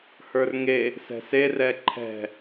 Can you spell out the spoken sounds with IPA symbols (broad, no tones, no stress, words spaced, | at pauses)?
hə˞rŋe | sɛ̤se rɛǃʰɛ̤